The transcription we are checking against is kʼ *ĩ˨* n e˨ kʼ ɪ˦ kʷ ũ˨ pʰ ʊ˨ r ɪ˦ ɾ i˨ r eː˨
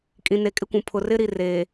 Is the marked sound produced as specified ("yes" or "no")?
yes